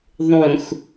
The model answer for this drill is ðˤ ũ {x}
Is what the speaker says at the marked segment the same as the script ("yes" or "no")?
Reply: yes